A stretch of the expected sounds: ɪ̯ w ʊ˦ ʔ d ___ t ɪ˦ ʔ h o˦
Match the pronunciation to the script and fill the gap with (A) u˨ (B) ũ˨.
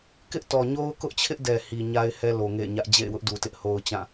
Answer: A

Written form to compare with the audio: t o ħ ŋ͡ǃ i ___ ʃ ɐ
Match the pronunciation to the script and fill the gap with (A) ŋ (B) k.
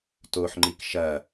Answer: B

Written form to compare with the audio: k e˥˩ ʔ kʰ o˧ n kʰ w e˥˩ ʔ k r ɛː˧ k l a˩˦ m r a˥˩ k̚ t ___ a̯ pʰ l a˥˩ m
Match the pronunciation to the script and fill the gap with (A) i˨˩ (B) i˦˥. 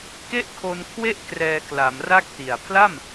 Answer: A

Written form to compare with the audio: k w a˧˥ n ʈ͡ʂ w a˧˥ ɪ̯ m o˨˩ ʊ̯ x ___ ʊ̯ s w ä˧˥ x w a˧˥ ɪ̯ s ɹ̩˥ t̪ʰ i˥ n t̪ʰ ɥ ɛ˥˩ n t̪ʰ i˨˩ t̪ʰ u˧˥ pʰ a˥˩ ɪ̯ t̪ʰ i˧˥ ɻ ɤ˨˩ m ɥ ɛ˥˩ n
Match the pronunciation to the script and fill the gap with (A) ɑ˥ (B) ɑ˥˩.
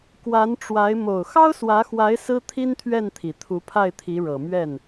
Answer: A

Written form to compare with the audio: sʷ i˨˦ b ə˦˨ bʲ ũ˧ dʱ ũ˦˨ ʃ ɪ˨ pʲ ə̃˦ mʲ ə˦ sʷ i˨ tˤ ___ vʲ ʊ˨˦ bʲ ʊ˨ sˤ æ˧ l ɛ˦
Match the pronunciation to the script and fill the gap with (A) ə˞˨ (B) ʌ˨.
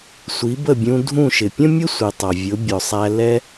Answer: B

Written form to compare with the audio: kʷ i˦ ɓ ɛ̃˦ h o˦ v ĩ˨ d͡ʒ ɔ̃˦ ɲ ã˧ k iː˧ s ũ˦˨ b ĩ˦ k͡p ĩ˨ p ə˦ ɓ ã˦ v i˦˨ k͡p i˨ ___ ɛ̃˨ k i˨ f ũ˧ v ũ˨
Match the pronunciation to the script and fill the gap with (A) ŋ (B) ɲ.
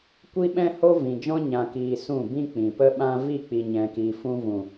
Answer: B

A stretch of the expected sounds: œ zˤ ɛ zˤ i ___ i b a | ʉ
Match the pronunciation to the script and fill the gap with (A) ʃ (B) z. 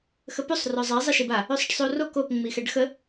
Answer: A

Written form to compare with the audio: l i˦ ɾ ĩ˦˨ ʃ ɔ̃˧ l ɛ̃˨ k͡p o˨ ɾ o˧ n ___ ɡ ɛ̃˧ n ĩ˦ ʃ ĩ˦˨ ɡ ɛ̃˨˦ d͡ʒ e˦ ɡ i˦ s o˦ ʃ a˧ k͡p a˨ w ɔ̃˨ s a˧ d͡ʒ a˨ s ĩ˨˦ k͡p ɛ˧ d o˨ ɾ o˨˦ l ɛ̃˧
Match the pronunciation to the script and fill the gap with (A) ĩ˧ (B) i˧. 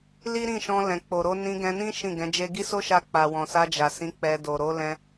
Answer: A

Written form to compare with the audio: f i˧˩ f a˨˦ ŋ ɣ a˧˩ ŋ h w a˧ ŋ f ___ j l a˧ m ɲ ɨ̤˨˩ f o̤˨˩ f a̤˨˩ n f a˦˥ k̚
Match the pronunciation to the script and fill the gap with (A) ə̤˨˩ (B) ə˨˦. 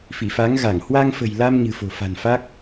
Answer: A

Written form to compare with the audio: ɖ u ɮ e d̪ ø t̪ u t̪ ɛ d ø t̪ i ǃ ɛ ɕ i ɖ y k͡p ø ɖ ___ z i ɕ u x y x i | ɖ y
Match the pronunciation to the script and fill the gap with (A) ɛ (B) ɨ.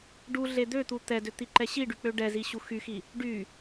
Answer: A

